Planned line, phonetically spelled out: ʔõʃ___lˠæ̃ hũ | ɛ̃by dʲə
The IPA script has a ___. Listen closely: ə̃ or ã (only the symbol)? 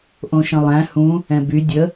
ə̃